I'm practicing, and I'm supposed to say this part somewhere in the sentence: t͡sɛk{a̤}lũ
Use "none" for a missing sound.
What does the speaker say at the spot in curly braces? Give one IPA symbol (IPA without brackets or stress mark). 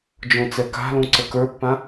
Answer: a̤